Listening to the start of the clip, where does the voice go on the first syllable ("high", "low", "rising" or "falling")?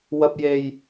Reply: high